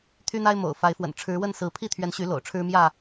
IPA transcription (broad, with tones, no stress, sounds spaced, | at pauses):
t̪ʰ y˦ n̪ a˦ ɪ̯ m o̰˨˩ ʊ̯ f a˨˦ ɪ̯ f w ə̰˨˩ n ʈ͡ʂʰ ɻ̩˨˦ w ə˥˨ n s ɹ̩˨˦ pʰ i˥˨ t̪ʰ ɥ ɛ˨˦ n ɕ y˨˦ l o̰˨˩ ʊ̯ ʈ͡ʂʰ ɻ̩˦ m j ä˥˨